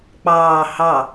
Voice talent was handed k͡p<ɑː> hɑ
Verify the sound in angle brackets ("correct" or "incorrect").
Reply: correct